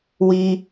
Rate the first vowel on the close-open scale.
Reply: close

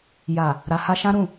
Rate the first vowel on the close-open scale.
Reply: open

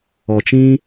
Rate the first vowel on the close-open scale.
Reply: mid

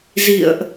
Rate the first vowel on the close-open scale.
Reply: close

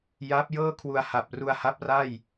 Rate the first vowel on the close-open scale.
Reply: open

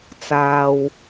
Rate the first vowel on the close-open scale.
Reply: open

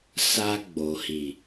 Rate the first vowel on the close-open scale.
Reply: open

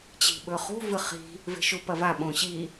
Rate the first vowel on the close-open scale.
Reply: close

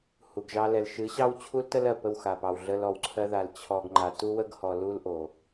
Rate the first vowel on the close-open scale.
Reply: close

